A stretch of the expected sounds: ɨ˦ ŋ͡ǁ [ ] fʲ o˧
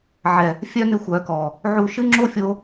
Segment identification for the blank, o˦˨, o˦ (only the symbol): o˦